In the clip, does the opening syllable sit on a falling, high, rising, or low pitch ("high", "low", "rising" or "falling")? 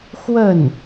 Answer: falling